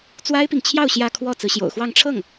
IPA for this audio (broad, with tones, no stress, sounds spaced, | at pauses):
t͡s w a˥ ɪ̯ p i˨ ŋ t͡ɕʰ j ɑ˥˧ ʊ̯ ɕ j ä˥˧ kʰ w ɔ˥˩ t͡s ɹ̩˧˥ ɕ j o̰˨˩ ʊ̯ x w ɑ˥˧ ŋ ʈ͡ʂʰ ɤ˥˩ ŋ